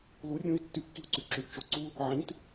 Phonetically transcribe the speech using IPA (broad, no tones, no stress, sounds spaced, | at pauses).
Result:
l u rʲ ũ i̯ tː y kː i u̯ ǀ y ǁ ʉ ʔ t͡ʃ o ǀ u | ʕ ĩ t